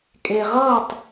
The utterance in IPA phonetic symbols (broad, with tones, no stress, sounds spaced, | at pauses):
kʼ e˨ ʁ ʌː˥˨ tˤ